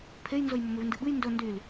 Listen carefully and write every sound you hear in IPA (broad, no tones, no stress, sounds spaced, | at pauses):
pʰ e j n z ɵ j m ɵ m ʉ v n d ɨ ɓ ɨ j n d ɵ n d y l